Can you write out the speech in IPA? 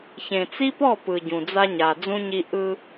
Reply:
ç ẽ˨ t͡s i˦ p ɔ˦˨ p ɯ˨ ɟ ũ˨ d͡z a˦ ɲ a˨ d͡z ũ˦ ɲ i˦ ʔ ɯ˦

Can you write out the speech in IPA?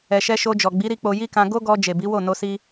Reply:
ɛ˧ ʃ ɛ˦ ʃ o˧ d͡ʒ ɔ˨ ɡ͡b i˨˦ ɾ i˧ k͡p o˧ j i˦ k ã˧ ɡ o˦ ɡ ɔ˧ d͡ʒ e˨ b i˨˦ w o˦˨ n o˧ s i˧

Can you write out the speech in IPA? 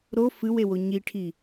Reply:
ɾ o f ɨ w e w o ɲ i ʈʰ i

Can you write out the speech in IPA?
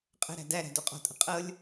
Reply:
qʼ ə̤ ɾ æ̤ d æ ɾ æ̤ d o qʼ ɔ̤ tʼ ə̤ qʼ ɤ lʲ

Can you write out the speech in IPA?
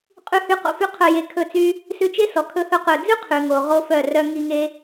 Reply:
qʼ ʉ˧ h y˧ q o̰˧ f y˦ qʰ œ˧ j e˧ kʰ ɵ˦˨ t͡s y˦ | s ʉ˧ t͡ʃ e˦ s ɔ˨ kʰ ɵ˧ h ɵ˧ q ɵ˨ d͡z ʉ˦ qʰ ʉ˧ ŋ o˧ ʁ o˦ f œ˦˨ r œ˦ ŋ i˧ ŋ e˧

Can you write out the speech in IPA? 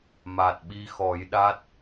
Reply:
m a˨˩ t̚ ɓ i˧ x ɔ˨˩˦ j ɗ a˦˥ t̚

